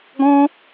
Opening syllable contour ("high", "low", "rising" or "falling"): high